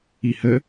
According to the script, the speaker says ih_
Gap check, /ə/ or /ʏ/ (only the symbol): ə